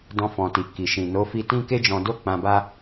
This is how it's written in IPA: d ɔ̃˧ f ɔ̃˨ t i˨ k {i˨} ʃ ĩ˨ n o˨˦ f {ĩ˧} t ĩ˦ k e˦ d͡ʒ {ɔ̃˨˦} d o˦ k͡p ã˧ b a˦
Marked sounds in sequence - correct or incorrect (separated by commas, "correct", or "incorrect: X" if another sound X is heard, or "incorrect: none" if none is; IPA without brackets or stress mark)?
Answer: correct, incorrect: i˧, incorrect: ɔ̃˧